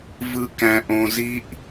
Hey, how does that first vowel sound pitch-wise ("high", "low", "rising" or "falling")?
low